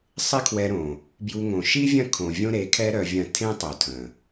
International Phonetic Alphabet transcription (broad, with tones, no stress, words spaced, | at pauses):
sˤɪ˦kʰwɛ˧ɾõ˨ | bju˧ŋõ˨ ʃi˦vʲɐ̃˦˨ kʰõ˨vʲõ˦ɾe˨˦kʰɛ˦ ɾœ˧vʲɐ̃˦˨ tʰẽ˦tˤo˨tʰə̃˨